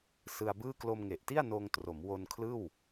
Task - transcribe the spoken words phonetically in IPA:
sɯ˧a̯bɯː˥˩ klo˧mŋe˨˩ʔti˥˩a̯noː˧ŋ tro˩˦mwo˧nkʰlɯː˥˩w

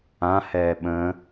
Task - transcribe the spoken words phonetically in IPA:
ãhɛː ɓə̃

